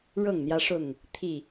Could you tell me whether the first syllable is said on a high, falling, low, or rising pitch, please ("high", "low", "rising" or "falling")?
falling